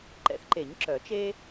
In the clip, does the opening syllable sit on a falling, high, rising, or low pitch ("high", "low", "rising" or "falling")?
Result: rising